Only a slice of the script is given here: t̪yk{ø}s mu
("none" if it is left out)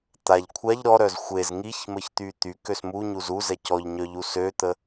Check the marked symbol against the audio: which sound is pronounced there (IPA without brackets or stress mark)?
ø